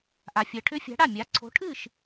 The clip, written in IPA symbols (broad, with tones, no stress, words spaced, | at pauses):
ʔa˨fʲɜ˨ ʈʰʏ˦˥fʲa̤˨˥ɽa˥˩mʲa˨˥ ǀʰo̤˨˥ʈʰɨ˥˩ʃ